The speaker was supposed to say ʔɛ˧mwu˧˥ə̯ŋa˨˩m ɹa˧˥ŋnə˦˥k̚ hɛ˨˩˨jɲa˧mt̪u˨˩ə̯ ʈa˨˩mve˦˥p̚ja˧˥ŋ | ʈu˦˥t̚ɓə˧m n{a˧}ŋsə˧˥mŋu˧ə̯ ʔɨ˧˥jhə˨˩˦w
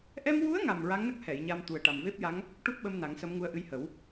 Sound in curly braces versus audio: incorrect: a˨˩˦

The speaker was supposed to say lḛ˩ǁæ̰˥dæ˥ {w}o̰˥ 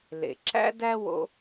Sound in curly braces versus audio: correct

